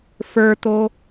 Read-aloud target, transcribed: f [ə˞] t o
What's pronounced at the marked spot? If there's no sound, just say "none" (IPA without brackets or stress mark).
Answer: ə˞